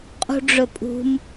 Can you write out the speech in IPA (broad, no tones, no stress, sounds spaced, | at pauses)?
qʼ ṳ ɖ͡ʐ ɵ pʼ ṳ m